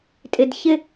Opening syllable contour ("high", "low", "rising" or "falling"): low